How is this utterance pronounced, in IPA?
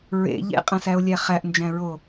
ɹ ḛ ʎ ḛ qʼ æ̃ s æ o̯ lʲ æ χ æ ʔ n d͡ʒ æ̃ ɹ o

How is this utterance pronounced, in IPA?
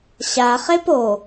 ɕ a χ e p o

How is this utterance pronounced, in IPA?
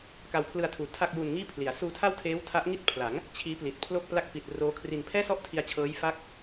k a˧ w pʰ l ɯ˧ a̯ tʰ uː˨˩ tʰ a˥˩ k̚ j uː˧ n ŋ iː˥˩ pʰ l i˩˦ a̯ s uː˧ tʰ a˥˩ w tʰ eː˦˥ w tʰ a˦˥ ʔ ŋ i˥˩ t̚ pʰ l a˩˦ ŋ | t͡ɕʰ iː˦˥ p l i˨˩ t̚ pʰ l o˥˩ k̚ p l a˥˩ k̚ p i˨˩ t̚ r oː˦˥ kʰ r i˧ n pʰ ɛː˥˩ s ɔ˥˩ ʔ tʰ i˧ a̯ t͡ɕʰ ɤː˦˥ j f a˦˥ k̚

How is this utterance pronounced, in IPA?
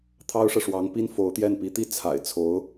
t̪ʰ ɑ˥ ʊ̯ ʂ ɤ˨ ʂ w ɑ˧˥ ŋ p i˥ n f o˧˥ ʊ̯ t̪ j ɛ˥˩ n p i˧˥ t̪ i˥˩ t͡sʰ a̰˨˩ ɪ̯ t͡sʰ o˧˥ ʊ̯

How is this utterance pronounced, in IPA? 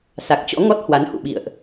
s a˨˩ k̚ t͡ɕ ɔ̰˧˥ ŋ ɔ˦˥ t̚ h w a˨˦ n h ṵ˧˨ ɓ ḭ˧˨ ə̯ ʔ

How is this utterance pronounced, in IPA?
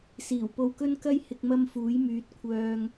s iː˨˩ w p o˧ w k ɵ˥ n k ɐ˥ j h ɪ˨ k̚ m ɐ˧ m f uː˨˥ j m yː˨˥ t̚ kʷʰ œː˧ ŋ

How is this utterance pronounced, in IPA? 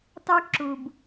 t ɑ˦ k ǁ u˨ b

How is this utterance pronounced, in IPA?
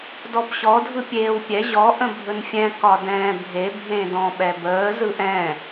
d ɔ b ɕ ɔ dʱ ɯ pʲ eː w pʲ ɛ ʑ ɔ ʔ ə̃ bʱ ɵ n fʲ ɛ̃ k ɒ d ɛ̃ː bʱ e bʱ ẽ d ɔ̃ ɓ ɛ b əː z ɯ ʔ ɛ̃

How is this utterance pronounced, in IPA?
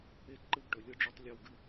e˦ ǃ ɯ˦˨ ɡ ʈ ɵ˨ lʲ ɯ˦ ɖ͡ʐ u˦ tˤ lʲ ɵ˦˨ w ɡ ɨ˦

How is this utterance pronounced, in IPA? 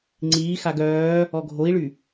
ŋ͡ǀ iː x a ɡ œː | ɔ ɡʱ o i̯ ɭ y

